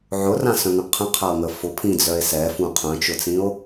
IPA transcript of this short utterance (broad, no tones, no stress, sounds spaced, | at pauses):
ʕ ʊ r ã s œ̃ ŋ ə̃ qʰ ə̃ qʰ a o̯ ŋ ə f ʊ pʰ ĩ d͡z œ e̯ s ɛ f ũ qʰ œ̃ t͡ʃ ʊ t͡s ĩ o̯